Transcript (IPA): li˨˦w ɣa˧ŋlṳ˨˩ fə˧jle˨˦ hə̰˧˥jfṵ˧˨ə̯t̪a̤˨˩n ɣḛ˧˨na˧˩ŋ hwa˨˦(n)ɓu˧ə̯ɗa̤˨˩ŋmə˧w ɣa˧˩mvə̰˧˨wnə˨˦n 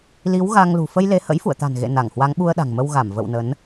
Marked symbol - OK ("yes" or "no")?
no